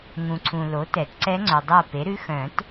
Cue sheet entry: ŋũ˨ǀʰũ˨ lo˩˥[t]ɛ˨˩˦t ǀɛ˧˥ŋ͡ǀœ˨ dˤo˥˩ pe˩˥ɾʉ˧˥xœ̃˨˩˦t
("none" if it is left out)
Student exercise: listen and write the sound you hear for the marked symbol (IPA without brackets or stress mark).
t